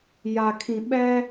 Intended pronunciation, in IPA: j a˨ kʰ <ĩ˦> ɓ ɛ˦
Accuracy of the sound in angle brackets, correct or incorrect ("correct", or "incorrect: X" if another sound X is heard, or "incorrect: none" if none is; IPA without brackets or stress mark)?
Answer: incorrect: ĩ˨